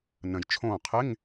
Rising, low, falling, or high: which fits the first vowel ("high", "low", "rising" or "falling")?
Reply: low